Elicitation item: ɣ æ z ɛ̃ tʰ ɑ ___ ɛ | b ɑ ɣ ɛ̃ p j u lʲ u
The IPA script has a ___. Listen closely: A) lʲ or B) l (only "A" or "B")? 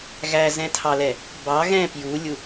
B